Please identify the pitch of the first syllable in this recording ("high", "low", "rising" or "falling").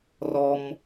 high